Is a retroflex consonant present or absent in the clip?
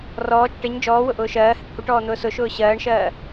present